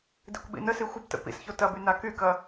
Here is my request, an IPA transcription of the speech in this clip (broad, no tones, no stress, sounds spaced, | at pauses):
d i kʷ ɓ ḭ n ə s i xʷ ə b t ə̰ p ḭ s ç o t ɐ b y n a k y k ɐ